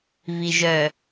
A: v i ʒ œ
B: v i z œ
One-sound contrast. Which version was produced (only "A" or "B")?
A